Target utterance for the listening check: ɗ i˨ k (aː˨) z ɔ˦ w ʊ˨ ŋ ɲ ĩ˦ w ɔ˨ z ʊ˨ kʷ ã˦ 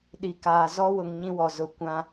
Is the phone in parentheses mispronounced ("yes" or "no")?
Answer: no